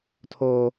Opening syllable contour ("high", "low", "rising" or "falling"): high